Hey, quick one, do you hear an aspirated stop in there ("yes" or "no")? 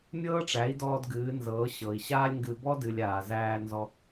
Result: no